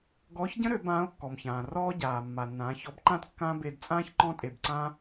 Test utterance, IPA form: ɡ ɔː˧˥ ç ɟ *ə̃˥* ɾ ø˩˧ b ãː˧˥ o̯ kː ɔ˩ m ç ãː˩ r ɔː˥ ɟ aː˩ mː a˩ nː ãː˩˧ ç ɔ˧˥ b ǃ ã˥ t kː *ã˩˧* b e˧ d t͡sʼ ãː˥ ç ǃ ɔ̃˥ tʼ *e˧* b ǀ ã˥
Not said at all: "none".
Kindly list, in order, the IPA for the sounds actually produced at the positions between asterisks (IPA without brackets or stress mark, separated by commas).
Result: ə̃˥, ã˥, e˧